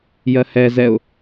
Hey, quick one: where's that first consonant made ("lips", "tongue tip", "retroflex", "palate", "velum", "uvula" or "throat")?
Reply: palate